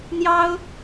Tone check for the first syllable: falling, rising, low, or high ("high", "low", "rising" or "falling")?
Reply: high